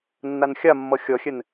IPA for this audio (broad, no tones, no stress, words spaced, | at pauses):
nːanxʲamːʌ xʲʌxʲɛn